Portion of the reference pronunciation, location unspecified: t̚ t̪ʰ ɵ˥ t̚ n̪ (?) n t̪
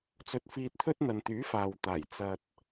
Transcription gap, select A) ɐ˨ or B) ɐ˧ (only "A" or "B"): A